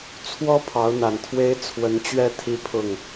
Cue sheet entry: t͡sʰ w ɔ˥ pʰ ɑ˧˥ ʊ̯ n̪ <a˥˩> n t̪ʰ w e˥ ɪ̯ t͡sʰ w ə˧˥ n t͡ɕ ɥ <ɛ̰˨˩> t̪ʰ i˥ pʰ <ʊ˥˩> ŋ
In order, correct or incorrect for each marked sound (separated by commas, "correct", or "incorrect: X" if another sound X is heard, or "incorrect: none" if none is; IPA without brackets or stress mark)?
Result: incorrect: a˨˩, incorrect: ɛ˥˩, correct